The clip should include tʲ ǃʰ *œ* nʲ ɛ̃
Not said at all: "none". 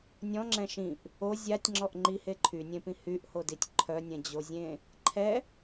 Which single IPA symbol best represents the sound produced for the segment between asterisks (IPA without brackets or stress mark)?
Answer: œ